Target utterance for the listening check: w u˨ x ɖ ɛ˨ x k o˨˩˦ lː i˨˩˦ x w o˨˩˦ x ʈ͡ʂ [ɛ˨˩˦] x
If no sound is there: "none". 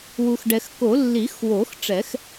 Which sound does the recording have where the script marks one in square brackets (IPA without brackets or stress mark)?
ɛ˨˩˦